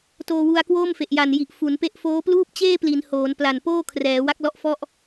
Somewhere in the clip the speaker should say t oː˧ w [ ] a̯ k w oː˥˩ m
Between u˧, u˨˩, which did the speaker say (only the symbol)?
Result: u˧